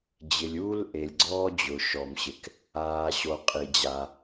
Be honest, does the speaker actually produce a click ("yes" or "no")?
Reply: yes